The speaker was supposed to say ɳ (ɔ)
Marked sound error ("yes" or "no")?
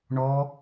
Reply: no